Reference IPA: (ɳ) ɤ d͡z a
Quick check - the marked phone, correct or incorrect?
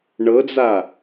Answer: correct